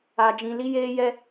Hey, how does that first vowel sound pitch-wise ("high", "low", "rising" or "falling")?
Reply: low